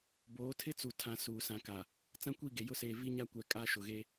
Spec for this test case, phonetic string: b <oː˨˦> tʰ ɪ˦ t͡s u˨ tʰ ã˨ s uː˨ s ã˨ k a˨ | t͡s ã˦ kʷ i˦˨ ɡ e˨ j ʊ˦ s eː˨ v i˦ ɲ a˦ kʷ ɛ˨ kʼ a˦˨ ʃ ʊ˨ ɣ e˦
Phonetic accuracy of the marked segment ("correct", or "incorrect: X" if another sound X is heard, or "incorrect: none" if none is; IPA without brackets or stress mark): correct